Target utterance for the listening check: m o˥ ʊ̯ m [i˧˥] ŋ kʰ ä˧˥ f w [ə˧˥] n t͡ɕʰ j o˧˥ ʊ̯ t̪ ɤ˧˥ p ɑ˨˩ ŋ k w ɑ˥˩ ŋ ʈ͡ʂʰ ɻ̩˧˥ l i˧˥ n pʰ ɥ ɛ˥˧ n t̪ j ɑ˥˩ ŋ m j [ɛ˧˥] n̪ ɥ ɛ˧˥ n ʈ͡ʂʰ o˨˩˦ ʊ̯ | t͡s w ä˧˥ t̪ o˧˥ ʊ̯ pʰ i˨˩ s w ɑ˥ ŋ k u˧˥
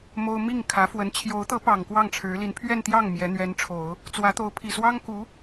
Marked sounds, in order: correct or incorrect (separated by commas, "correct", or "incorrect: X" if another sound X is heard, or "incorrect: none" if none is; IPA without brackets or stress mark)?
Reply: incorrect: i˥˩, correct, correct